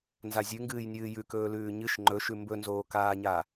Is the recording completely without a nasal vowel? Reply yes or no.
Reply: yes